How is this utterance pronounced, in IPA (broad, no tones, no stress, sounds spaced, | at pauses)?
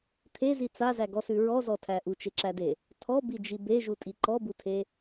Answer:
t̪ʰ e z i t͡s a z æ ɡ ɔ s ʉ ɹ ɔ z ɔ tʰ æ ʔ u t͡ʃ e ǁ æ d e | tʰ ɔ b i d͡ʒ i b e ʒ u tʼ i ǃ ɔ b u tʰ e